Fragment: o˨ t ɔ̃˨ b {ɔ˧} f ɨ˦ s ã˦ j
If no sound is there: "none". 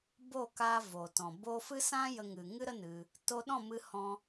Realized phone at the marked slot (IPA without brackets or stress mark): o˧